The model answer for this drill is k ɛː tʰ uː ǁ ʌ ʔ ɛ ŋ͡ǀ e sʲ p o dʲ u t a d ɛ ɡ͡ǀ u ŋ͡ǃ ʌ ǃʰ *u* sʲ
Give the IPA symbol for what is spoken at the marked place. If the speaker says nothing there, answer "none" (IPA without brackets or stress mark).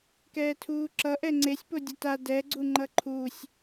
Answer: u